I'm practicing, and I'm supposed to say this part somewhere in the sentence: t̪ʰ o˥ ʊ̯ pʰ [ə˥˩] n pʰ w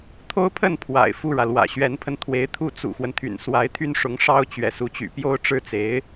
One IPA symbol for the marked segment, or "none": ə˥˩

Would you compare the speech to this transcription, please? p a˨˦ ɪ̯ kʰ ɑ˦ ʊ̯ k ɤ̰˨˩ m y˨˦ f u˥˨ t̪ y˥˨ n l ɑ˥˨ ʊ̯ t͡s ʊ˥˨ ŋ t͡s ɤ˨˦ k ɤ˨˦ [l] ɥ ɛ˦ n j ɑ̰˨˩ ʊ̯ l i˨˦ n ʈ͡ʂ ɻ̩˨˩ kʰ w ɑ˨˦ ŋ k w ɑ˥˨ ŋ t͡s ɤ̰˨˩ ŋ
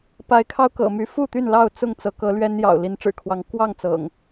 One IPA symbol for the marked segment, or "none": l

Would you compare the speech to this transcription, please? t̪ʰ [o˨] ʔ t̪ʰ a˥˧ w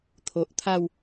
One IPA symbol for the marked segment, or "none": o˨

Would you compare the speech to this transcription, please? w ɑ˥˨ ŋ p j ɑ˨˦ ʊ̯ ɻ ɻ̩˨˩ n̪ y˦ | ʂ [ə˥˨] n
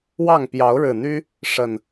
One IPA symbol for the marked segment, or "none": ə˨˩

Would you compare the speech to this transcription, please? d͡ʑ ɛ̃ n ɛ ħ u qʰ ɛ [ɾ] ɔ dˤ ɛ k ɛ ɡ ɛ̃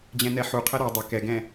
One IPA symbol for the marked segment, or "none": ɾ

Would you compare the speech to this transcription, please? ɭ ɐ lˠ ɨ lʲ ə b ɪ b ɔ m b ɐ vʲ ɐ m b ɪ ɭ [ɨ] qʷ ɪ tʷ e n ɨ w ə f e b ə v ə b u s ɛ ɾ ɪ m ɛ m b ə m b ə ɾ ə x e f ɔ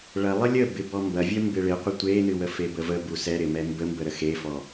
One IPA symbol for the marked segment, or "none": ɪ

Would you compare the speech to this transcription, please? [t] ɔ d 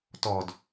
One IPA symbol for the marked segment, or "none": t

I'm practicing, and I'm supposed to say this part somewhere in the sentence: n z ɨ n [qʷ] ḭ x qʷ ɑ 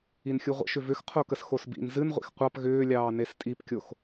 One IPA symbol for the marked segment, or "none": ʁʷ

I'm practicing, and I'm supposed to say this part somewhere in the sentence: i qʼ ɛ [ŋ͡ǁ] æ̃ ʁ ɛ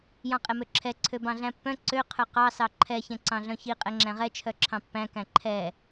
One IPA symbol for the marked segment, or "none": ŋ͡ǁ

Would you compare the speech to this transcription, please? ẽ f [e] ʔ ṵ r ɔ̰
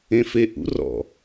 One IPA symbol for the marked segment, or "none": e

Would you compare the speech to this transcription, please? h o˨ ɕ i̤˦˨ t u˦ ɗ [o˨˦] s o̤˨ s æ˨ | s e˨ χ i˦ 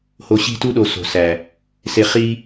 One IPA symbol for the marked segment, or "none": o˨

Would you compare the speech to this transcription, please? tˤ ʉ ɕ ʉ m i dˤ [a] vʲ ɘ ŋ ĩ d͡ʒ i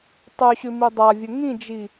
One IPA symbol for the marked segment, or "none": a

